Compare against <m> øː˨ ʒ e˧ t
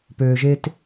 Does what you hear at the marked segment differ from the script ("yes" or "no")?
yes